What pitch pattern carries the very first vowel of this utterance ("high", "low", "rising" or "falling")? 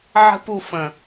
high